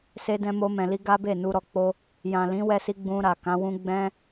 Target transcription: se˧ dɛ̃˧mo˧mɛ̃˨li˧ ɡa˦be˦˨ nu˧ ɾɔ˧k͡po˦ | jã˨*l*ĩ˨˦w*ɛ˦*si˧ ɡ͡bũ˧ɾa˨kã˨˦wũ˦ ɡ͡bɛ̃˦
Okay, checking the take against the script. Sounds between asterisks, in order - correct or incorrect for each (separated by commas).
correct, incorrect